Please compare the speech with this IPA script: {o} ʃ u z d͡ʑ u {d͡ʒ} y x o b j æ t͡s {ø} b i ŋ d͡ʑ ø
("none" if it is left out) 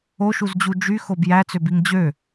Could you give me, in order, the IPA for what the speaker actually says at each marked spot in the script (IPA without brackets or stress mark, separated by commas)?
o, d͡ʒ, ø